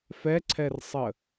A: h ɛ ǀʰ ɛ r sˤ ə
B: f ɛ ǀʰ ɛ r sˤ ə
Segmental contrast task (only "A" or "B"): B